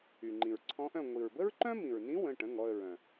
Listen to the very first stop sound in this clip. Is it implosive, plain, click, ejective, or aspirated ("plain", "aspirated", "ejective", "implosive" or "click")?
click